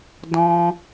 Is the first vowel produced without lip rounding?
no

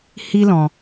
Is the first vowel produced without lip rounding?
yes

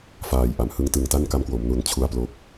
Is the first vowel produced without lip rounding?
yes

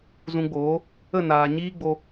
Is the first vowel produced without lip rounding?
no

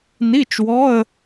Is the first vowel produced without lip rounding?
yes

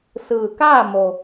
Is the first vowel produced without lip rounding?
yes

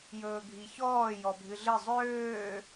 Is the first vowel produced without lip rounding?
no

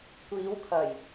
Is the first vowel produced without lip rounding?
yes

